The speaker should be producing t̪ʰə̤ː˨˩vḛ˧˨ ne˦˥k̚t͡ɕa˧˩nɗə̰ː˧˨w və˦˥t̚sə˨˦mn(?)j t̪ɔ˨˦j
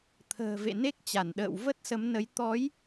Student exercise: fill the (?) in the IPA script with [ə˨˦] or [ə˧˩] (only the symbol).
ə˨˦